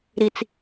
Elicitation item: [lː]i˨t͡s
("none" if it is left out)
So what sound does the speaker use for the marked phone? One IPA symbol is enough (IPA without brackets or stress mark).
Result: ɾ